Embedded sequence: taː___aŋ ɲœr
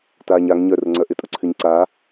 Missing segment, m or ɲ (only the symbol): ɲ